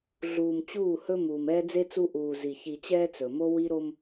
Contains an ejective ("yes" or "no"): no